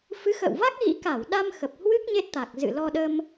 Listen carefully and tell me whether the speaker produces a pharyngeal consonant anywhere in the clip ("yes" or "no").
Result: no